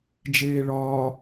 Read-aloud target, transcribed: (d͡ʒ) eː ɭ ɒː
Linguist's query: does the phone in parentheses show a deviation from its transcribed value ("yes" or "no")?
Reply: no